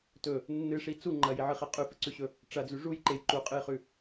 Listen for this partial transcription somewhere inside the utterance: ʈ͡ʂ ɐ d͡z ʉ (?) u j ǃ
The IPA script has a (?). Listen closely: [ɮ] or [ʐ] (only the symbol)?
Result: ʐ